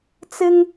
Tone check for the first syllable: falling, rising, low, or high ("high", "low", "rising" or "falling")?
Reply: high